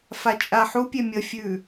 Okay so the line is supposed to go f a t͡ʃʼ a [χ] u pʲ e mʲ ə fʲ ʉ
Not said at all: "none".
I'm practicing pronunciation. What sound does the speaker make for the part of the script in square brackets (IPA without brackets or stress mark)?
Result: ħ